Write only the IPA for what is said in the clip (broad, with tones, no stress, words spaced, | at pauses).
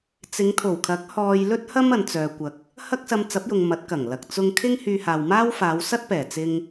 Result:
t͡sɪ˨˧ŋt̪ʰo˨˩wkʰɐ˨˥k̚ hɔː˧jlɵ˥t̚hɐ˥m ɐ˨nt͡sœː˨kʷɐ˨k̚ | hɐ˥k̚sɐ˧mt͡sɐ˨˥p̚jʊ˨ŋ mɐ˨˥t̚kɐ˨˩ŋlɐ˨k̚ t͡sʊ˧ŋkʰɪ˥ŋ hyː˧haː˨wmaː˥w faː˨˧w sɐ˥t̚pɛː˨˩ t͡sɪ˧ŋ